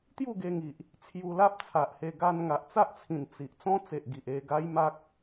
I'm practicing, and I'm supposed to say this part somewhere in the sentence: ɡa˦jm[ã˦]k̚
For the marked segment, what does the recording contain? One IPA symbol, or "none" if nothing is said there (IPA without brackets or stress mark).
a˦